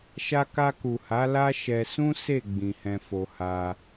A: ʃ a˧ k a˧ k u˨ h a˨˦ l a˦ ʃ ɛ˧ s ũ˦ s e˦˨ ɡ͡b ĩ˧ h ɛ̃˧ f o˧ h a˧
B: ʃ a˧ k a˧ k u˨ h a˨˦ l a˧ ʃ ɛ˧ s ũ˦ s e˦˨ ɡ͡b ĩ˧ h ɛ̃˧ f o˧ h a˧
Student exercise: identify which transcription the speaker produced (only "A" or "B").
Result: A